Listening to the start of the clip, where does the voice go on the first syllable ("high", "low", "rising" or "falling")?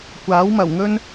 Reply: rising